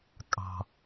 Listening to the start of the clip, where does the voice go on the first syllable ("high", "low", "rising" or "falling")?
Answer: low